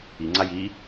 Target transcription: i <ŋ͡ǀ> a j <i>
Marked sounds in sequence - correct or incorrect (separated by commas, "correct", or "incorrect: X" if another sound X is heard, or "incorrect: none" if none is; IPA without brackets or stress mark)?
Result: correct, correct